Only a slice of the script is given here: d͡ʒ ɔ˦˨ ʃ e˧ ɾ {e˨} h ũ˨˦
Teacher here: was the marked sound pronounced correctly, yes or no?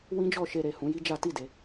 yes